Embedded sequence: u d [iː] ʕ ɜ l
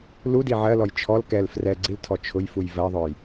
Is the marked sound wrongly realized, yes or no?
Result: yes